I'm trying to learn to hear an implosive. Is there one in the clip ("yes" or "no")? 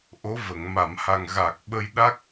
yes